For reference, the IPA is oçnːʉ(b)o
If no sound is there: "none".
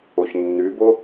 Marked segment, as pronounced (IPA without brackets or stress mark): b